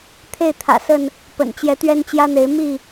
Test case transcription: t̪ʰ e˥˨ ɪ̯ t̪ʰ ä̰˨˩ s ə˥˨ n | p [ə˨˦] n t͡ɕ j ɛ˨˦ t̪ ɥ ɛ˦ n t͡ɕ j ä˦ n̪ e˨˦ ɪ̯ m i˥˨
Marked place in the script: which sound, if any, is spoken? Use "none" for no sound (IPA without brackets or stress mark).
ə̰˨˩